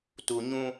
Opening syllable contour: low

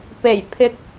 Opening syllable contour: low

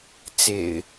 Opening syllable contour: low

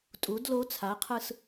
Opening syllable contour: rising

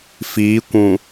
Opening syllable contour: rising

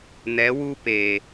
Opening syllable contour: rising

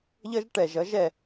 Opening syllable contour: high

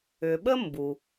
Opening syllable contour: low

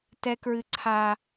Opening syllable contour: high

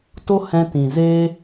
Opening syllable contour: high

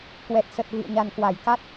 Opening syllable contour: low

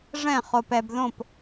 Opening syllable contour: falling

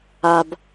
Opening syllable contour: low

